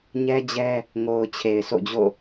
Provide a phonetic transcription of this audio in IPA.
ɲ ɛ˦ d͡ʑ ɛ˦ | ŋ o˨ ʊ̯ t͡ɕʰ e˨ ɪ̯ s o̰˦˨ d͡ʑ o̰˦˨

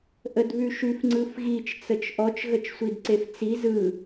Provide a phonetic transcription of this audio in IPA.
ʔ ə d β ʉ ʃ ʉ f ŋ͡ǀ ɯ f ɣ i t͡ʃ t͡s ə t͡ʃ ʔ ɔ t͡ʃ ɣ ə t͡ʃ sʷ i d ǀ e f t͡s i z ɯ

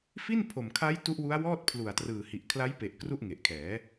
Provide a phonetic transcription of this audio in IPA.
f i˥˩ n pʰ o˨˩ m kʰ a˦˥ j t u˦˥ ʔ w u˦˥ a̯ w ɔː˥˩ t̚ pʰ l u˨˩ a̯ t r ɯː˨˩ h i˨˩ ʔ kʰ l a˦˥ j p e˨˩ ʔ k r u˥˩ ʔ ŋ e˨˩ ʔ kʰ ɛː˩˦

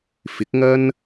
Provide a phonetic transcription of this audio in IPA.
f ɪ˨˥ k̚ ŋ ɐ˥ n

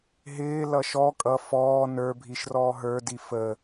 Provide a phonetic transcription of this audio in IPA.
ɦ ɪː l ʌ ʃ ɔ kʼ ʌ f ɔː n ə˞ bʱ i ʃ r ɔː ɦ ə˞ d i f ə

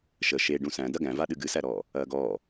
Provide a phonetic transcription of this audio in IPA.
ʃ ə ʃ e ɖ ũ s æ̃ d ɐ ɡ æ̃ v a ɗ ɨ ɡ ɨ s æ ɾ ɔː | ɐː ɡ ɔː

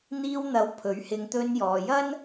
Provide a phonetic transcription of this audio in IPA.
n̪ iː˧ w n̪ ɐ˨˧ w pʰ ɵ˨˥ ɥ h ɪ˧ ŋ t̪ ɵ˧ n j ɔː˨ j ɐ˥ n

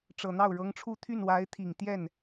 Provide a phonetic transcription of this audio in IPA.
ʈ͡ʂ ɤ˨˩ n̪ ɑ˥˩ ʊ̯ ɻ ɤ˧˥ ŋ ʈ͡ʂʰ u˥˧ t̪ʰ y˥˩ n w a˧˥ ɪ̯ t̪ʰ i˨˩ ŋ t̪ j ɛ˥˩ n

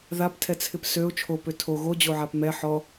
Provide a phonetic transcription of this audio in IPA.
ð a p tʰ ɛ t͡sʰ ɪ p s ø ʊ̯ t͡ʃʰ o p ø tʰ o ɣ o d͡ʑ o ʕ a p m ɛ ħ ɔ

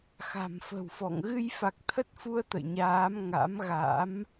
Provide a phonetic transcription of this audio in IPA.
x a̤˨˩ m f ə̤˨˩ w f ɔ̰˧˨ ŋ ɣ ɨ˧ j f a˨˩ k̚ t̪ʰ ə˦˥ t̚ f u˧ ə̯ t̪ ə̰˧˨ j ɲ aː˨˦ m ŋ a̰˧˥ m ɣ a̰˧˥ m

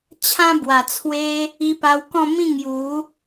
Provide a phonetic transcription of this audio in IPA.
t͡ɕʰ ã˦ b w a˨˩ t͡sʰ w e˦ | i˧ p a˧ w k ɔ̃˥˧ m ĩ˥˧ ŋ j u˨˦

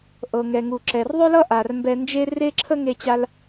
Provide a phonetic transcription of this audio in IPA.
ʔ ɤ˩ ŋ ɛ˩ ŋ u˩ ǁ ɛ˩ r ðˤ ɵ˥ l ʌ˥ ʔ a˩ r m b ɛ˧ n d͡ʒ e˥ r e˥ ǁʰ ə˥ ŋ e˧ t͡ɕ a˧ l

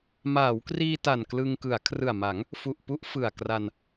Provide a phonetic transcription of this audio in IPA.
m aː˩˦ w k r iː˧ t a˨˩ n k l ɯ˧ ŋ k ɯ˩˦ a̯ kʰ r ɯ˨˩ a̯ m a˩˦ ŋ | f u˨˩ ʔ p u˦˥ ʔ f ɯ˨˩ a̯ k r a˧ n

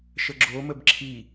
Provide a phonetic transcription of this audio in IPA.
ʃ ə ɡ͡ǁ o m ə b ǁʰ i

